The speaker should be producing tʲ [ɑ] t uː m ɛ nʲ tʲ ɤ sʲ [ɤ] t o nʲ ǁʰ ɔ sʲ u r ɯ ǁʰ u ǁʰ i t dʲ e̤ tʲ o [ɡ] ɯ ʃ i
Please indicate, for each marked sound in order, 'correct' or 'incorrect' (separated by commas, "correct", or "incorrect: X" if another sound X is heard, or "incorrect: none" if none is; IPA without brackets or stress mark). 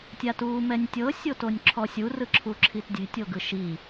incorrect: a, incorrect: o, correct